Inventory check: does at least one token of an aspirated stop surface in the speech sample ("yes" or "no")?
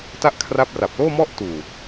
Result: yes